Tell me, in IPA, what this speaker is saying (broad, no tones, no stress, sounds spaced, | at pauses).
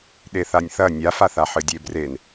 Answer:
ɗ e θ a nʲ θ ɐ nʲ a f a θ a ħ ɨ dʲ e b r e n